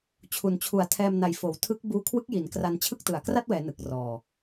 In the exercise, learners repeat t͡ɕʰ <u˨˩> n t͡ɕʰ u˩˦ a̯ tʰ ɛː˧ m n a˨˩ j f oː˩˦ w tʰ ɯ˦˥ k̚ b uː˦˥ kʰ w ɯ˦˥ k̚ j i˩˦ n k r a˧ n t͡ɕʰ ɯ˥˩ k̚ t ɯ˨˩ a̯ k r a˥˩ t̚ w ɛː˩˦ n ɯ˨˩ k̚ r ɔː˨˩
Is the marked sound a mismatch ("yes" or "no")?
no